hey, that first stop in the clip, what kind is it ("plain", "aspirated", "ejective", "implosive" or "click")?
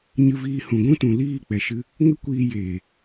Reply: plain